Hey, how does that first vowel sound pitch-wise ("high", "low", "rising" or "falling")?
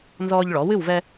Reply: high